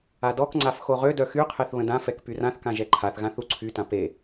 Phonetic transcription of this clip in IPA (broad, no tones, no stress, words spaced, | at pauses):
adɔkŋ͡ǀaf xoʁødœ xyqʰeθ βə̃dãfɛk pyrãθkã ʒɛǃʰaθɣã θuǀʰytã pe